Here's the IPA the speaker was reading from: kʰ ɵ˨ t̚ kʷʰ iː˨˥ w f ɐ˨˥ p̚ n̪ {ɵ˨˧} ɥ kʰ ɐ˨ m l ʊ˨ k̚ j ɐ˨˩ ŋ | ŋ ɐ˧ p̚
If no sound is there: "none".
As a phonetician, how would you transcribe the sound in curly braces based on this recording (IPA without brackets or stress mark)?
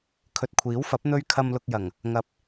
ɵ˧